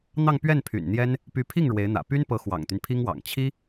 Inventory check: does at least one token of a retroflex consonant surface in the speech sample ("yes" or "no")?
yes